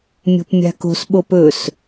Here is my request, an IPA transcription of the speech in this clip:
mʲo̤pmʲa̤ko̤s ɓopɵs

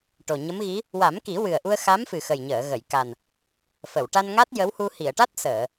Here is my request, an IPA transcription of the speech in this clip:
ʈo˨˩ɲə˧˥mɣi˧˥ | wa˨˩˦mki˨˩˦ wɨ˨˩ə̯ʔu˧ə̯ xa˧˥mfɨ˨˩xə˨˩jɲəː˨˩˨ ɣə˨˩˨jka˨˩n | fə˨˩˨wʈa˧nŋa˦˥t̚ jə˧˥whu˧ hi˨˩˨ə̯ʈa˦˥t̚ səː˨˩˨

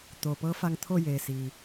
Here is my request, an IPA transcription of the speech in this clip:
t̪oː˩pɤː˧˥fa˧ŋ t̪ʰo˥˨ jeː˩siː˩

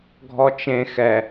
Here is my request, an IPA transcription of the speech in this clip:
ɡʱɔt͡ʃẽ xɛ

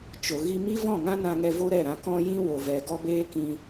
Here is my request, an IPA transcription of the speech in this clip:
t͡ʃo˨ ɣi˧mi˦vɔ̃˦˨ŋã˦ nã˧ŋɛ˧ vo˦ɾɛ˦˨ɾã˧ kɔ̃˦ jĩ˦ wo˨vɛ˨ ɡɔ˦beː˦kĩ˧

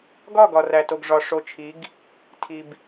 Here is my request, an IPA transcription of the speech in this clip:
ɡɒ˦˨ ɡɒ˨ræ˨to˨ɡ ʐɒ˨ ʂo˨t͡ʃʰi˨˦ɡ | tʰi˨b

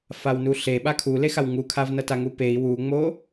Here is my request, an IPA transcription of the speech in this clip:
fawnuɬe ɓakʰulexaw ŋukʰavnʌta ŋupei̯ wuŋ͡mo

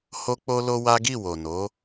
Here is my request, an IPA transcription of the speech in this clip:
ho˦k͡po˦lo˦wa˦ ɡi˦˨wo˨no˨˦

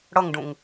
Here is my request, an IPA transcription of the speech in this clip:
ɽʌŋɖũŋ

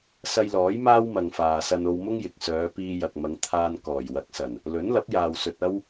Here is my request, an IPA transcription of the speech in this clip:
sɐ˧jlɔː˨˥j maː˥wmɐ˨ŋfaː˨sɐ˧n o˧wmʊ˥ŋjɪ˨k̚sœː˨˧ piː˧jɐ˨k̚mɐ˨˧ŋt̪ʰaː˧n kɔː˨˩jwɐ˨˥k̚sɐ˨˩n | lɵ˨˥nlɐ˨˥p̚jaː˨w sɵ˧t̚ɐ˥w

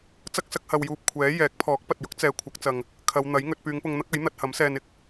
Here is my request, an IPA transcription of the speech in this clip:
t͡sɐ˥k̚sɐ˧k̚hɐ˨wjuː˨p̚ kʷʰɛː˨˥ jɛː˨˥k̚pʰɔː˨˥k̚pɐ˨t̚jʊ˥k̚ t͡sɛː˨ kʷʰɐ˨˥k̚t͡sɐ˨ŋ | kʰɐ˨˧wn̪ɐ˨˥jŋɵ˧t̚ pyː˨˧ŋpʊ˧ŋn̪ɐ˥k̚ɐ˨˥j n̪ɐ˧t̚hɐ˨˥msɛː˧nɪ˥k̚

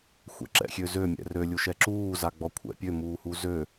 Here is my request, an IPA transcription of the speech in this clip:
xʷɛ̰ǁɛ̰xʲøzø mʲɛ̰rø lʲuʃɛǁuː zaɡ͡bɔkʷʰɛ̰pʲø muːhuzø

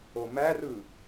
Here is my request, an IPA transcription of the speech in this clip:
omærɯ

